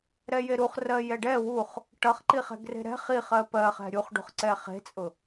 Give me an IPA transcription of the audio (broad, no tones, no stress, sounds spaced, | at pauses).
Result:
ɾ ɛ j e ɾ u χ r ɜ j ɛ ɖ ɛ w u χ | ʈ ʌ χ ǃ i χ ɛ̤ ɡ r e̤ ɾ ɛ̤ χ i χ ɜ p ɜ χ ɛ̤ ɾʲ u χ ɖ ṳ χ ǀ ɛ χ e̤ t͡sʼ ʊ